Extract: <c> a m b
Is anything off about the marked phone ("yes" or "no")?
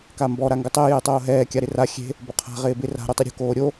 yes